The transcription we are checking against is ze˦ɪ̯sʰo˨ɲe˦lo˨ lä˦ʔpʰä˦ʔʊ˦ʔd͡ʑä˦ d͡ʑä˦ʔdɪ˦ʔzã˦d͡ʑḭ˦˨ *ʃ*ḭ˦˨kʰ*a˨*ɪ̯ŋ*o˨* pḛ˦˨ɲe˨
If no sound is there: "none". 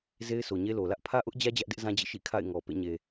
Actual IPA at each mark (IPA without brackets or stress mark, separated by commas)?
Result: ʃ, a̰˦˨, ɔ˨